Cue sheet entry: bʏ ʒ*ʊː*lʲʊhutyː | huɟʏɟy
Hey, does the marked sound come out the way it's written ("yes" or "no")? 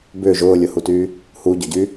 yes